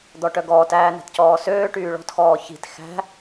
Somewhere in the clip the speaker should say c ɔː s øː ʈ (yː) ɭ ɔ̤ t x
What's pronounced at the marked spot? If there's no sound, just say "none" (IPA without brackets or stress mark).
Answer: yː